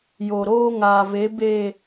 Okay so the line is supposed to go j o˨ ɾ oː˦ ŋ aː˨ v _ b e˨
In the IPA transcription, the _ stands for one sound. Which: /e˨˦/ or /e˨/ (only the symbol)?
e˨˦